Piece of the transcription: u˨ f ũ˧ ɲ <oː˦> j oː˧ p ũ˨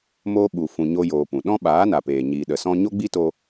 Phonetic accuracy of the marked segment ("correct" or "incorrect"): incorrect